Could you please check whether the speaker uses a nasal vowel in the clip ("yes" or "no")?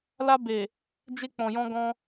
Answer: yes